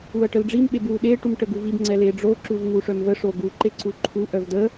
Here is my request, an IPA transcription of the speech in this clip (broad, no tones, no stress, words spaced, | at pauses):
uɐ̯ʈəlɖ͡ʐim ɓebwuɗe ʈumʈəɡuvib ŋ͡ǀɛleɖ͡ʐo ǁuvŋuʂœmvə ʂoɡu ǃeǀuǃʰu ʔœvdə